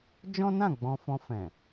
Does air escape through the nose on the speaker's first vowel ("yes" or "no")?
yes